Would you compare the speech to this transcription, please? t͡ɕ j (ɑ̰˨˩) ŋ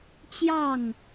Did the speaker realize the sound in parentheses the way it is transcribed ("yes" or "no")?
no